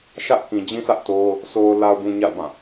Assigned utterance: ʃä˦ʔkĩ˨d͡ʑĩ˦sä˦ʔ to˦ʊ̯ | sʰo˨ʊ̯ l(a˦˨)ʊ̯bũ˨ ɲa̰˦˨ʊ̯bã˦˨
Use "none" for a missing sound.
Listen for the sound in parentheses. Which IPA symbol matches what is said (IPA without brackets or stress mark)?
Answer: a˨